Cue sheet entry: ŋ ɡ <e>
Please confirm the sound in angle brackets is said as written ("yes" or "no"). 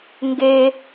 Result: yes